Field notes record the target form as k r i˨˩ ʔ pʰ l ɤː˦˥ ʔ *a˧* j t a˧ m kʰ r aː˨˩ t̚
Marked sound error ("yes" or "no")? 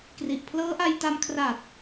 no